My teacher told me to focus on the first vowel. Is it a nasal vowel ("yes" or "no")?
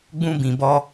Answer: yes